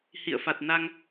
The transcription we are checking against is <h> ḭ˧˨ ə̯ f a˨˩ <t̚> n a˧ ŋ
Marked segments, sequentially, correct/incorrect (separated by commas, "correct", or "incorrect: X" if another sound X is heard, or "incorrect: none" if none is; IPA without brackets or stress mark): correct, correct